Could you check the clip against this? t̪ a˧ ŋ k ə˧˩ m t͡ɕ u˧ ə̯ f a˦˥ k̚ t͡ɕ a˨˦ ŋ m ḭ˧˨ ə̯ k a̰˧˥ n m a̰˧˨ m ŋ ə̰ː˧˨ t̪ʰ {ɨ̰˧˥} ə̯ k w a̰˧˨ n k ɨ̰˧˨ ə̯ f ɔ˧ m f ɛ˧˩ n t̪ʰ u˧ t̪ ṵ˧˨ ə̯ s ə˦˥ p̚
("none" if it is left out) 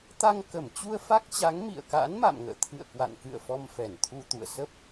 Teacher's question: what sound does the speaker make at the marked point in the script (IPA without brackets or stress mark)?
ɨ̰˧˨